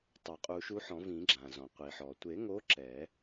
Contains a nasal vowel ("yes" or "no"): yes